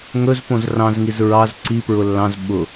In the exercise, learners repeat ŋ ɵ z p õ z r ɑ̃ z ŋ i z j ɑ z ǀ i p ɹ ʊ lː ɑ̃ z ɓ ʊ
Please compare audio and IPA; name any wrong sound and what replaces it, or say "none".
j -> ɹ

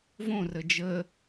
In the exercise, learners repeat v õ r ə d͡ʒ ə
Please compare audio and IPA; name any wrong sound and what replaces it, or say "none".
none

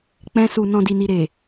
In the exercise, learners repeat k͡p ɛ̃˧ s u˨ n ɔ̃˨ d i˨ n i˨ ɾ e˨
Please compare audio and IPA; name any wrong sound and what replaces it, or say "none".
none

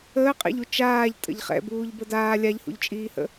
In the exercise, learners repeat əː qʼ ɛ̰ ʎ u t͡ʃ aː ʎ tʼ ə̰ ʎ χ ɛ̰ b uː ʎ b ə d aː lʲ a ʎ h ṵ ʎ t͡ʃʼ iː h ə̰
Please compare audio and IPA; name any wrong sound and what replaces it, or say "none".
none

